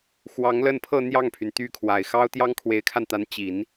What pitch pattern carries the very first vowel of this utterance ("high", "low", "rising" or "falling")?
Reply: rising